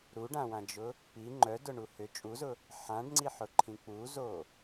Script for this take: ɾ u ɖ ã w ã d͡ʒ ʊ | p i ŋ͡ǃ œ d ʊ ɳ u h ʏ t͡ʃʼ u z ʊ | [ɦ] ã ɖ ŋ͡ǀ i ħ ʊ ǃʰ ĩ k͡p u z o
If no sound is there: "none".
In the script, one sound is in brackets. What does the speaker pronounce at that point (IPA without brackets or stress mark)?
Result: ħ